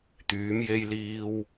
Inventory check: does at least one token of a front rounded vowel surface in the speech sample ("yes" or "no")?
yes